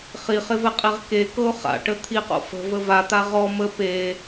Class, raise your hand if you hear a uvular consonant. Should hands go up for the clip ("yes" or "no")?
yes